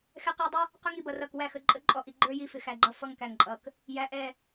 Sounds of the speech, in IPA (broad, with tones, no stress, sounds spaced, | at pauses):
x ɛ˦ q ə˞˦ dˤ ə˦ | q ʊ˦ ŋ i˨ b ʌ˨ r ʌ˨ k w æ˦˨ x ə˨ ǃʼ ə˦ ǃʼ ɔ˨ ʔ i˨ ɡ͡ǃ ə˞˦ j i˨ f ɪ˨ x æ˨ ɡ͡ǃ ʌ˦ f ʌ˦ ŋ k æ˨ ŋ ǃʼ ʌ˨ k | j æ˨ ʔ ɛ˦˨